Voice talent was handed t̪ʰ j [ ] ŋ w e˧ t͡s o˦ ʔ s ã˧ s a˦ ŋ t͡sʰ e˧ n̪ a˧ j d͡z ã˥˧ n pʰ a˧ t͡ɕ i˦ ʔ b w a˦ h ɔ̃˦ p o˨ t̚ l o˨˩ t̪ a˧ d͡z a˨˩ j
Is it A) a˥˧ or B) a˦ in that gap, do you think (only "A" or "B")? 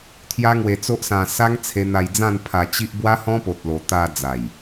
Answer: B